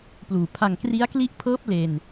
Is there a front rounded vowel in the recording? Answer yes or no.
no